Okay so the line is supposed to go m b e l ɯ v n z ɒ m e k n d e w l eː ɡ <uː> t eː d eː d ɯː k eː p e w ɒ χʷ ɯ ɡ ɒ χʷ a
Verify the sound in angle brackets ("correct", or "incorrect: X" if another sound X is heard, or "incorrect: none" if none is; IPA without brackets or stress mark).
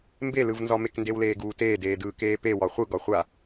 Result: correct